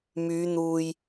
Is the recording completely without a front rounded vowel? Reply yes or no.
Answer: no